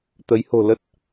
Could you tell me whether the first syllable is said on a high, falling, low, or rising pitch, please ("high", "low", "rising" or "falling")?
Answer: rising